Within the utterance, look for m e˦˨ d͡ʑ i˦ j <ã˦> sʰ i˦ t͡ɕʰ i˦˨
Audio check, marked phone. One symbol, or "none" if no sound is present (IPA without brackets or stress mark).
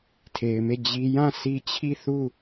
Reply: ã˦˨